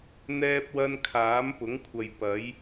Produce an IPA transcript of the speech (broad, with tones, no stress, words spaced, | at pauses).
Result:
n̪ɛː˥p̚wɐ˥n kʰaː˨˥mpʊ˨˥ŋkʷʰɐ˨j pɐ˨˥j